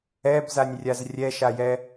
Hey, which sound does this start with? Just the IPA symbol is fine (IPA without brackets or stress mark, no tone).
ɛ